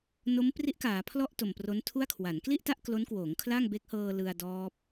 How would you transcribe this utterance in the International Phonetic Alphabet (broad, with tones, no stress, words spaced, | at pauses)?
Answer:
no˦˥mpri˦˥ʔkaː˩˦ pʰlɔ˥˩ʔ to˨˩mpro˦˥n tʰu˥˩a̯kʰwa˩˦n kli˥˩ʔta˥˩ʔ klo˦˥nkwoː˩˦ŋ kʰla˥˩ŋbe˦˥k̚hɤː˧ lɯ˧a̯dɔː˦˥p̚